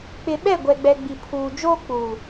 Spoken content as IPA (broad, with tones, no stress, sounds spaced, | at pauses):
k͡p ɪ˨ ɓ ɛ˦˨ ɡʷ ɛ˨ ɡ͡b ɛ˨ ɡ͡b i˨ pʰ uː˨ d͡ʒ oː˦ k͡p uː˨